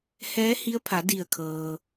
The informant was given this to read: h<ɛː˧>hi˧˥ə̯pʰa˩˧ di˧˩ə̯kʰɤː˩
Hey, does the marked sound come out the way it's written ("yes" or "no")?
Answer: no